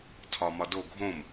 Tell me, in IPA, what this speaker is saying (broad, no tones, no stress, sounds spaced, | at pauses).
tʰ ɒ m ɒ d o ɡʱ õ m